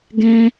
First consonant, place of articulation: velar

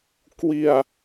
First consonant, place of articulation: velar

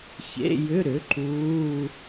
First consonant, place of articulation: palatal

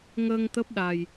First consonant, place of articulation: velar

